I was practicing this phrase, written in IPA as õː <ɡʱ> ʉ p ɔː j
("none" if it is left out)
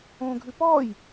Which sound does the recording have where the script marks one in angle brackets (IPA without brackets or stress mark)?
ɡʱ